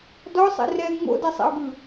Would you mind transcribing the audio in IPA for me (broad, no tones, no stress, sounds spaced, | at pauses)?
d ɔ sˤ ḛ r ɛ ŋ͡m o̰ d ɛ sˤ ḛ o̯ ɡ ɯ